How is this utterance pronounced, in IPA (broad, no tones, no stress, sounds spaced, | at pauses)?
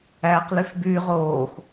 æː q l y f b yː ʁ oː x